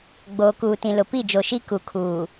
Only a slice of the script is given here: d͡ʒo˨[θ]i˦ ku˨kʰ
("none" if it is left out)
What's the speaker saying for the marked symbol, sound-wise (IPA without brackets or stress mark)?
ʃ